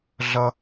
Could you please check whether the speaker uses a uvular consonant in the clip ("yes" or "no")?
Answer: no